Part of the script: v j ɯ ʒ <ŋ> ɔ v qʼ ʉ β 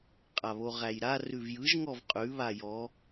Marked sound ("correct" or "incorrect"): correct